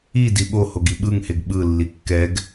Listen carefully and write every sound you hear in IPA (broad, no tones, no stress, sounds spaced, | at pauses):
i d i ɓ o h o ɡ i ɓ ɯ ŋ h e ɡ ɓ ɯ lː i kː ɛ ɡ